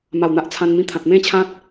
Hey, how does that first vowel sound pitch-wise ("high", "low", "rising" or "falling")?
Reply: low